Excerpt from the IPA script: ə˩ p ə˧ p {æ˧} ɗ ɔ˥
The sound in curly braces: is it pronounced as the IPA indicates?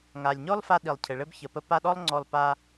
no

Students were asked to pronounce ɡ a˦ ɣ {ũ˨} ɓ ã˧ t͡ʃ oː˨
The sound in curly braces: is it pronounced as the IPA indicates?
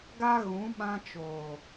no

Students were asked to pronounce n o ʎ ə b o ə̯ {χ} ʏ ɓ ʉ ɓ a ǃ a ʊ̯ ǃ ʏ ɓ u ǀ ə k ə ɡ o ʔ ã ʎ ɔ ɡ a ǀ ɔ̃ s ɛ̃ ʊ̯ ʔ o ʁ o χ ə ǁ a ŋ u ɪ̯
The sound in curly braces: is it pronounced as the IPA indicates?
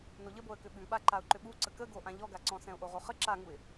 no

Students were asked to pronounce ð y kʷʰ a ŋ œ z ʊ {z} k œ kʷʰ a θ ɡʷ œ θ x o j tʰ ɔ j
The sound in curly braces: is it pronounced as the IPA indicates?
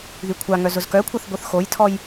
yes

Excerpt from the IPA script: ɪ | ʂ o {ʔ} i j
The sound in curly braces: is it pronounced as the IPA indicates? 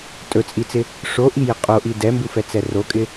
yes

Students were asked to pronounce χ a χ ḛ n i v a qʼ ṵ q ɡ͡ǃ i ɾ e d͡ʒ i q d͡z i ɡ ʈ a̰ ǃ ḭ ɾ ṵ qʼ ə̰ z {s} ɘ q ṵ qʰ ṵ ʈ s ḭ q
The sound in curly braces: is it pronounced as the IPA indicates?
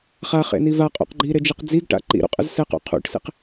yes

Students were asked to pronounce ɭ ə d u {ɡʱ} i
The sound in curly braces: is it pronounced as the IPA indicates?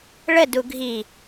yes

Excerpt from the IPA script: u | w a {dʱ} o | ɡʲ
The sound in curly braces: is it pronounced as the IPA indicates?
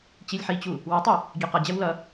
no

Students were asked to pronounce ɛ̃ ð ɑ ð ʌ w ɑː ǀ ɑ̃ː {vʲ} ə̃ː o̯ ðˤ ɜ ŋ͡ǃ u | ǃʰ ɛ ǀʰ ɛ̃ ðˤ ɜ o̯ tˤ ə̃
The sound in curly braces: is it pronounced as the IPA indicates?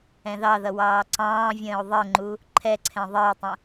yes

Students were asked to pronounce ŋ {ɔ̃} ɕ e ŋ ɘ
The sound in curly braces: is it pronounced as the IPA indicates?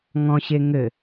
yes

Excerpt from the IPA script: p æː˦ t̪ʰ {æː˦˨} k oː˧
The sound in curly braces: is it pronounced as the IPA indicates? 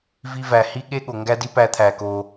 no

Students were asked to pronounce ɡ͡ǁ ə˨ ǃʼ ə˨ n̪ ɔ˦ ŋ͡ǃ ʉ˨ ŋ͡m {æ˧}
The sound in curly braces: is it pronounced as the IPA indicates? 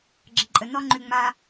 no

